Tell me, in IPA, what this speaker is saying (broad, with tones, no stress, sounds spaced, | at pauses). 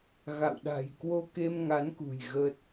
ɣ a̰˧˨ w ɗ a̤˨˩ j k w o˧ k e˧ m ŋ a˨˦ n k ṳ˨˩ j ɣ əː˦˥ t̚